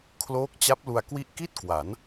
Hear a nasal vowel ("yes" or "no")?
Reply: no